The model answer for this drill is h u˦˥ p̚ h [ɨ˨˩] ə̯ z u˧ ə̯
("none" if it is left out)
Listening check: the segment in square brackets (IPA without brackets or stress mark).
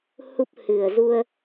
ɨ˨˩